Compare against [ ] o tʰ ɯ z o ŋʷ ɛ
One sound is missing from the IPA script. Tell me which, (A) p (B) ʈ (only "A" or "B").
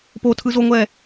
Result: A